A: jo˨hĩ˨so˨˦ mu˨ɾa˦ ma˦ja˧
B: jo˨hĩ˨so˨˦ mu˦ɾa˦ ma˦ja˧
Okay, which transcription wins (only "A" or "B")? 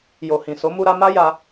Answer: B